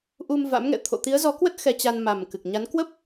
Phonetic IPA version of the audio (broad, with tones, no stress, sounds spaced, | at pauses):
ʔ u˧ m v a̰˧˥ m ŋ ɛ̰˧˨ t̪ʰ o̰˧˨ t̪ i˨˦ ə̯ z ɔ˨˦ k w ə˦˥ t̚ x ɛ˧ t͡ɕ a˧ n m a˨˩ m k ɨ˨˩ k̚ ɲ a˨˦ n k w ə˦˥ p̚